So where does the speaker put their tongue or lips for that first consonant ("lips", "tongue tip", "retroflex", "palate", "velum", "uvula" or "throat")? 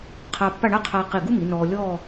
uvula